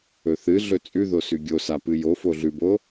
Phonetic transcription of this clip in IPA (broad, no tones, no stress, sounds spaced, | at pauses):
ɵ θ ɨ ɮ ɵ t͡sʼ ʉ ð o s ʉ ɡʲ o s a p ɨ j o f o ɮ ʉ b o